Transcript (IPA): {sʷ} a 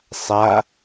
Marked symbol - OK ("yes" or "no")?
no